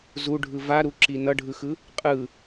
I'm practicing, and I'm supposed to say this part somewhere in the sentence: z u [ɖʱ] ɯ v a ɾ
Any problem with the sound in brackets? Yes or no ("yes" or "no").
no